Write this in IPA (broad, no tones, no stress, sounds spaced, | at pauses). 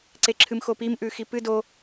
ǀ e ǁʰ ɨ m x o p i m ʔ ʉ x i p ɨ d o